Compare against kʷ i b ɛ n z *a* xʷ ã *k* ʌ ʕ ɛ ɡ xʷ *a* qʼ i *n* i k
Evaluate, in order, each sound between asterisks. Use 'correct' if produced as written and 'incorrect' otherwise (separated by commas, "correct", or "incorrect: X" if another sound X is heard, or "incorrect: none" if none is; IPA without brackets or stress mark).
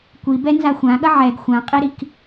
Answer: correct, incorrect: ɠ, incorrect: ã, incorrect: ɾ